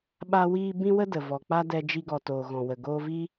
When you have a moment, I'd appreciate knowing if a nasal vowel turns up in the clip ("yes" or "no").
yes